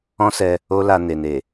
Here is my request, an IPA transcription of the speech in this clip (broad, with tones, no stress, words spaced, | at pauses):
ɔ̃˦sɛ˧ | o˦la˧ne˨ne˨